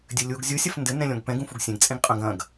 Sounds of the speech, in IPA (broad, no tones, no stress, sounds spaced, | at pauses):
dʲ ɘ lʲ u ɡ zʲ u sʲ ɐ f n d ɘ n ɛ̃ lʲ ɔ̃ ɡ p ɛ̃ ɡ ũ f u ɡ sʲ ɛ̃ ɡ t͡sʼ ẽ ɡ qʼ ɐ̃ ɡ ɐ̃ ɡ